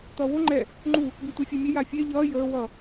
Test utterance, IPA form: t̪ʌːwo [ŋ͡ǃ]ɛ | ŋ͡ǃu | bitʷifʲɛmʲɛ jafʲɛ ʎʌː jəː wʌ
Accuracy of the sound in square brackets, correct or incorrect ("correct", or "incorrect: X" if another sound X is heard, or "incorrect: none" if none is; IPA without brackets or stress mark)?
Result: correct